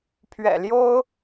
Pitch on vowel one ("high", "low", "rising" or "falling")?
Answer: low